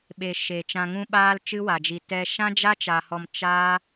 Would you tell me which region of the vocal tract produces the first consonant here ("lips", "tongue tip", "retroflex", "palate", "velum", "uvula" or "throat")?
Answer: lips